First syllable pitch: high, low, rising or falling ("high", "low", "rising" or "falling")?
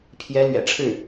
rising